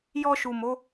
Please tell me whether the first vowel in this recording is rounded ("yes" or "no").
yes